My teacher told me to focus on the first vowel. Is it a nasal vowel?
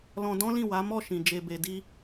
yes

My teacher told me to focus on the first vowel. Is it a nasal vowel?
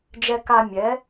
no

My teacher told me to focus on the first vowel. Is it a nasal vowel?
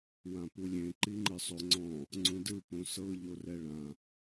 yes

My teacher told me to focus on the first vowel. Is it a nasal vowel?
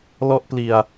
no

